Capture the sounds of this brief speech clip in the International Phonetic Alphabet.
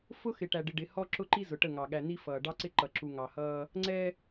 f ʊ˦ x ɪ˨ ʈ æ˨ ɖ ɪ˨ ɖ ɪ˨ h ɔ˦ ǁ ʊ˦ ǃ i˦ z ʊ˨ ʈ ə˦˨ ŋ ɑ˨ ɠ æ˨ n̪ i˦ f ʌː˨ ɖ ɑ˦ ǀ ɪ˦ ǃ ʌ˨ ǁ u˨ ŋ ɑ˨ h ʌː˦ | ŋ͡ǀ ɛ˦

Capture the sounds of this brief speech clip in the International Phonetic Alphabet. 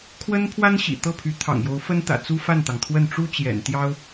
kʰ w ə˥ n pʰ w a˥ n ɕ ḭ˨˩ t̪ ɤ˥˩ pʰ y˧˥ t̪ʰ ɑ̰˨˩ ŋ j o˧˥ ʊ̯ f ə˥ n t̪ ä̰˨˩ t͡s u˥ f a˥˩ n t̪ ɑ˩ ŋ t̪ʰ w ə˥˩ n ʈ͡ʂ u˥ t͡ɕ j ɛ̰˨˩ n t̪ j ɑ˥ ʊ̯

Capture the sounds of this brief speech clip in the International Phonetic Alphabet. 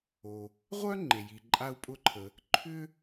o˩ | ʁʷ œ˥ ŋ͡ǃ e˩ j i˩ ǃʼ a˥ u̯ pʼ ʊ˥ ǃʰ ə˩ | ǃʰ ʏ˥

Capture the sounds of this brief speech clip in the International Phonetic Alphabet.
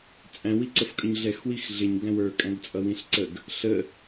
t͡sʼ æ̃ w i ǀ ə f kʼ ə ɲ ɮ ɛ x w i x ɮ ɪ ɲ ɡ æ̃ w ə˞ kʼ æ̃ ɡ t͡sʼ ʌ w ĩ ɬ ǀ ə ɡ | ɬ ə

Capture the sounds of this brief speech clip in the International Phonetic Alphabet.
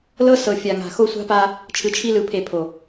l ɤ˦ s ɤ˨ fʲ a˨ ŋ a̤˨ x o˦ sʷ a̤˦ p a˦ | t͡ʃʰ ɯ˨ t͡ʃʰ i˦ l ɯ˨ pʰ e˨ pʰ o˨

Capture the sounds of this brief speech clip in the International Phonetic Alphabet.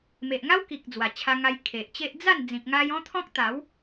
m e˨ ʔ ŋ a˦ w k i˨ k̚ d͡z w a˨˩ t͡ɕʰ a˧ ŋ a˧ j kʰ e˨ ʔ t͡ɕ e˦ ʔ d͡z a˥˧ n d͡z ĩ˨ k̚ ŋ a˧ j ɔ̃˦ t̪ʰ ɔ̃˦ k̚ t̪ a˨˦ w

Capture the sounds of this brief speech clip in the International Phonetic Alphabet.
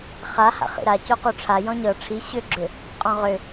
χ a h a̰ χ ḭ ɾ a c o q o ʈ͡ʂʰ a j ɔ̃ ɲ ɤ ʈ͡ʂʰ i ɕ ʏ ɡ͡ǁ ʏ | qʼ ɔ̃ ʁ ʏ

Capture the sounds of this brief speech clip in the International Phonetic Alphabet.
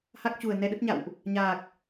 h a˦˥ k̚ t͡ɕ u˨˩ ə̯ n ɛ˧ ɗ ə˦˥ t̚ ɲ a̰˧˨ w ʔ | ɲ aː˨˩ k̚

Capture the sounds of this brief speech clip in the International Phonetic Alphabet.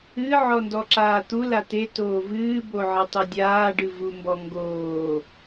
ɨ ʕ ɔ n d ɔ ǁ aː t̪ u l a t e t oː v ɨː b o ʕ ɨ tˤ u dʲ aː ɖ ɨ v u m b ɔ ŋ ɡ oː

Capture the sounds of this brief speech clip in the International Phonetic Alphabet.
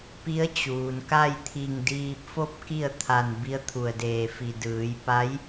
p i˧˥ ə̯ t͡ɕ uː˩ n k a˥˨ j t̪ʰ i˧˩ ŋ d iː˧ p̚ f o˥˨ p̚ k i˥˨ ə̯ t̪ʰ a˧˩ n b i˧˥ ə̯ t̪ʰ u˧˩ ə̯ d eː˧˩ f i˧˩ d ɯː˩˧ j p a˧˥ j

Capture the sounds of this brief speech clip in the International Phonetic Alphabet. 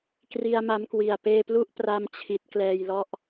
k r i˧ a̯ m a˦˥ m k w i˨˩ a̯ p eː˧ p l u˥˩ ʔ p r a˥˩ m t͡ɕʰ i˦˥ t̚ k l ɛː˧ j l ɔ˥˩ ʔ

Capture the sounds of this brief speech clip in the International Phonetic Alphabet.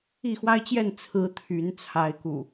i˥˨ x w a˦ ɪ̯ t͡ɕ j ɛ˥˨ n t͡sʰ ɹ̩˨˦ t̪ʰ y˨˦ n t͡sʰ a˨˦ ɪ̯ k ṵ˨˩

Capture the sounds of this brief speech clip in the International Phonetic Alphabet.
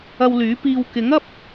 ɐ˧ w l yː˨˥ p iː˧ w k ɪ˨˥ ŋ ɐ˥ p̚

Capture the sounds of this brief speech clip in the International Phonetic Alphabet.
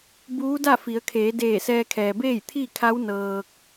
b uː˧˥ d a˥˨ f i˩˧ ə̯ kʰ eː˩˧ d eː˧˩ s ɛː˧ kʰ ɛː˩ b eː˥˨ j t̪ʰ i˥˨ kʰ a˧˥ w n ɤː˧ k̚

